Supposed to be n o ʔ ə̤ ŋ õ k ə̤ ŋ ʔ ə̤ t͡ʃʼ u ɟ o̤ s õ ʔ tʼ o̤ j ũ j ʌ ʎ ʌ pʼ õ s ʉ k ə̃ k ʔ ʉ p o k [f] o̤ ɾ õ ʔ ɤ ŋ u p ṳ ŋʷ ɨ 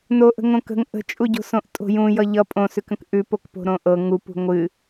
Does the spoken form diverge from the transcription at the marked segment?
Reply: yes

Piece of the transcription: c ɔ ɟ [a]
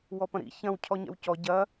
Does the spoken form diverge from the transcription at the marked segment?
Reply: yes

